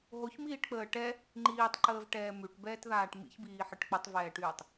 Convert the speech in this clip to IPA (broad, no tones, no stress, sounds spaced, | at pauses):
ɦ o ç m iː ʈ k͡p əː ʈ ɛ | ŋ͡ǃ iː tˤ ǃ əː v ʈ ɛː m y ʈ b ɛː t ð aː ʈ m ḭ ç b iː ħ ə ʈ k͡p ə tˤ v ɛː ʈ yː tˤ